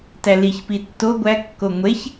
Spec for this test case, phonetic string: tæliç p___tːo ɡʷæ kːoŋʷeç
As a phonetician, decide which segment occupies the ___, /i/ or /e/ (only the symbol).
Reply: i